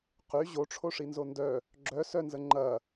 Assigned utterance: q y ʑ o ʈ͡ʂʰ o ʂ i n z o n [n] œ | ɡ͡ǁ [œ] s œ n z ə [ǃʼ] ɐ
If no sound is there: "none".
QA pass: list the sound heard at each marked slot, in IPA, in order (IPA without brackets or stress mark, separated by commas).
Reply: d, œ, ŋ͡ǃ